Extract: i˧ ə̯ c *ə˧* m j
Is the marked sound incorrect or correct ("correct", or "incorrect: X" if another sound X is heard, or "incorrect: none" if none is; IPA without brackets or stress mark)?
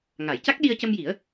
correct